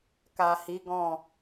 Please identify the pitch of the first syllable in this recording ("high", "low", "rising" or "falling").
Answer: low